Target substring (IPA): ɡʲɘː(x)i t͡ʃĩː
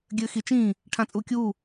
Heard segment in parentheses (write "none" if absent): x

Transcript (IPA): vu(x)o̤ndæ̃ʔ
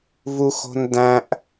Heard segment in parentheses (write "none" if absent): x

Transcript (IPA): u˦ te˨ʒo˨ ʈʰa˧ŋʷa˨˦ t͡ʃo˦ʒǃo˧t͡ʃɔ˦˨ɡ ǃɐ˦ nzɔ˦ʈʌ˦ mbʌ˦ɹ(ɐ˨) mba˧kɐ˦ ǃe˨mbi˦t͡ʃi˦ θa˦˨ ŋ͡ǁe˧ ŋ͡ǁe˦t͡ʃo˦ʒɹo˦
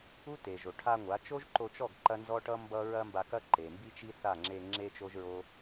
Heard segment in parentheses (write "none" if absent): ɐ˦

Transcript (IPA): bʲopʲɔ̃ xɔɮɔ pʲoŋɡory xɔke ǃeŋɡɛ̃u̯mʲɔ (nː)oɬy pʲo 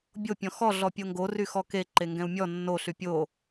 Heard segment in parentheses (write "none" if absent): nː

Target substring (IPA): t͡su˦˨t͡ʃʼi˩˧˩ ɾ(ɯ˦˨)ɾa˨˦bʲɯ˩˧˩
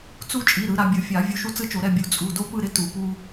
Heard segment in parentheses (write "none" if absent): ɯ˨˦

